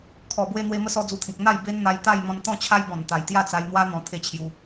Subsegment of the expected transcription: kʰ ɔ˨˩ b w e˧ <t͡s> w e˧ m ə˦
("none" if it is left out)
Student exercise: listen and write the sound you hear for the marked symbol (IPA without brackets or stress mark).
n̪